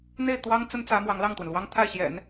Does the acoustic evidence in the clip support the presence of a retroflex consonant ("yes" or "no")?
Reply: no